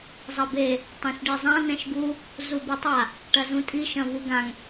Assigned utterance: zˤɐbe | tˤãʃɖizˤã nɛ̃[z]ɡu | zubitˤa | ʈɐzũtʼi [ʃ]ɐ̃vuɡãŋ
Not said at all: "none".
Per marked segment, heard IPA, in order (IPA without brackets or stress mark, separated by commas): ʃ, ʃ